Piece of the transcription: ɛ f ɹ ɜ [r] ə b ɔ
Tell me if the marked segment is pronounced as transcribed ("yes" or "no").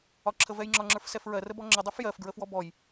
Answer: yes